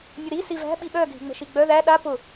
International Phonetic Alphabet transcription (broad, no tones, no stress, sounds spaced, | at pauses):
nʲ ʊ ɾ i s i v æ̤ ɓ i ɓ œ ɡʱ i̤ ŋ͡m ə̤ ʃ i ɡ͡b œ ð æ ɗ a p ʊ